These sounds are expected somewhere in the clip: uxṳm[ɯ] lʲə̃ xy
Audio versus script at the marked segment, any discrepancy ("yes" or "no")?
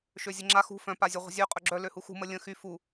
yes